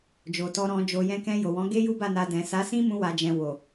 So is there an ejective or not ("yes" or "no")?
no